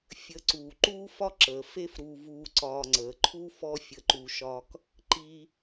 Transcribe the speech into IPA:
fʲ ə˨ ǀ uː˩ ǃ uː˥ f ɒ˥ ǁ əː˩ f e˥ f ɾ uː˨ v uː˨ ǀ ɒː˨ ŋ͡ǀ əː˩ ǃʰ u˥ f ɔ˦ fʲ ə˨ ǃ u˨ ʃ ɒ˦ k | ǃ i˦

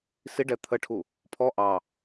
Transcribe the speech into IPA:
s i ɖ ɛ t̪ʰ ə ʈʰ u | pʰ ɔ ʔ ɑ

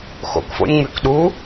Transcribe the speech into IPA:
x o̰ k f o̰ nʲ ŋ͡m y k ɗ u

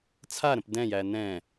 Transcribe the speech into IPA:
t͡sʰ a ɾ ə̃ p d ɛ̃ j æ n ɛ̃

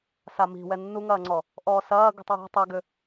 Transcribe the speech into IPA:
s a m i̤ w ɛ nː u ŋ ɐː ŋ͡ǀ ɔ | ʔ ɔː s ɐː ɡ ṳ tˤ w ɛ̤ tˤ ɛ ɡ ʏ

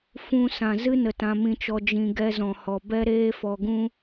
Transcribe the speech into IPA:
f ũ˧ s ã˨ z ɨ˦ n ə˨ t ã˧ m ĩ˧ t͡ʃ ɔ˧ d͡ʒ ĩ˧ ɡ ɛ˧ z ɔ̃˨ h ɔ˨ b ɛ˦ ɾ eː˦ f ɔ˧ ɡ ũ˦

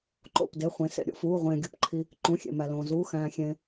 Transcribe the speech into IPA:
ǃ o̰˩˧˩ p d e˩˧˩ χʷ ẽ˩ s ḛ˩ ɾʲ o̰˩ f uː˩˧˩ ʁʷ ẽː˩ ɡʲ u˩ p ǃʰ i˩ | ǃ ũ˩˧˩ xʲ ḛ˩ m æ˩ l õː˩ z uː˩˧˩ x æ̃ː˩ xʲ ẽː˩

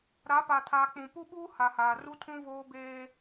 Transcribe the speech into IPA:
ɾ a˨˦ p a˨ tʰ aː˨ k͡p ũ˨ p u˦ ɓ uː˦ h a˨ h aː˨ r u˦ tʰ ũ˦ v oː˦ b eː˦

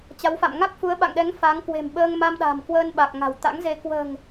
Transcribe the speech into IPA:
t͡ɕ a˨˦ w f a̰˧˨ m ŋ a˦˥ k̚ f u˨˦ ə̯ ɓ a̰˧˨ ŋ ɗ ɛ˨˦ ŋ f a˨˦ ŋ k w e̤˨˩ m ɓ əː˧ ŋ m a˧ m ɗ a̤˨˩ m k w əː˧ n ɓ a˨˩ k̚ ŋ a̤˨˩ w t̪ a̰˧˥ ŋ z e˧ k w ə̤ː˨˩ ŋ

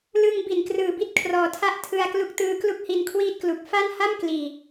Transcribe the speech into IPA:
l ɯ˧ ŋ b i˨˩ n k r ɯː˨˩ b i˥˩ t̚ kʰ r ɔː˨˩ tʰ a˥˩ ʔ tʰ ɯ˧ a̯ k l u˦˥ k̚ t ɯː˧ k l u˥˩ k̚ h i˧ n kʰ w iː˥˩ t̚ k l u˨˩ k̚ f a˥˩ n h a˥˩ m k l iː˨˩

